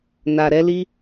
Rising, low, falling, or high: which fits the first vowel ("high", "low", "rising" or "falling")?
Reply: low